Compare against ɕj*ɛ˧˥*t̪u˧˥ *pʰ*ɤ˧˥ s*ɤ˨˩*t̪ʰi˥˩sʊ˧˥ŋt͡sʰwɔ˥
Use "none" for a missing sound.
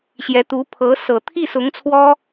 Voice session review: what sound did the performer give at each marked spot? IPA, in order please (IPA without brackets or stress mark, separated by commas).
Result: ɛ˧˥, pʰ, ɤ˨˩